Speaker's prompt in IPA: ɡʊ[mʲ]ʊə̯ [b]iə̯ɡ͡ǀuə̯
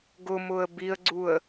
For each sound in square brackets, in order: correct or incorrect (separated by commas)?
incorrect, correct